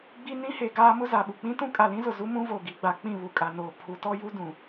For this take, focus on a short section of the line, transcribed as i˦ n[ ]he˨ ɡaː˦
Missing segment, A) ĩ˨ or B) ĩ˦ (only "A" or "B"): B